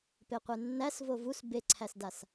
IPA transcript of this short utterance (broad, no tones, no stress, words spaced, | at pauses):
peqʷenːæs vovus beǀʰæsdas